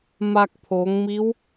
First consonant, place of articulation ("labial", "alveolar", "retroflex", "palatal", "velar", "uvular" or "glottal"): labial